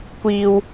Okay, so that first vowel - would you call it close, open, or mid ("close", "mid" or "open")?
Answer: close